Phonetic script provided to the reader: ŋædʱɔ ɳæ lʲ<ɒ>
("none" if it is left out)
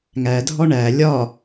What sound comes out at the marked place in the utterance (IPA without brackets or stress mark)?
ɒ